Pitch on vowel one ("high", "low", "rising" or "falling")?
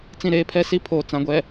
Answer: falling